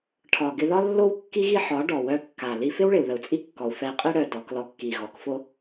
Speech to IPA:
ʈʰɒ˨ɡɪ˧ðɒ˦lːo˦w kːi˦ɣi˦ħɒ˨˦ ɖɔ˨wœ˧ kːa˨ li˧fɪ˦w ɭɪ˨u̯ðə˨u̯t͡sʼi˦kːɔ˨u̯ fɛ˧i̯qʼi˦ɽœ˧ dɔ˨˦klɔ˧ kːi˨ ɣɔ˨˦kfo˦

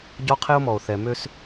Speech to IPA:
ɟɔ˦qʰe˦o̯mɔ˨o̯ θɛ˨ mø˦s

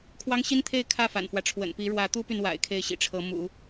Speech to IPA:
kʰwɑ˥ŋɕi˥nt̪ʰe˥˧ɪ̯ kʰä˥˩fa̰˨˩nfwä˦ʈ͡ʂʰwə̰˨˩n pi˧˥ɻwä˧˥t̪u˥py˨n wa̰˨˩ɪ̯ kʰe˥˩ɪ̯ɕḭ˨˩ʈ͡ʂʰɤ˧˥ mṵ˨˩˦

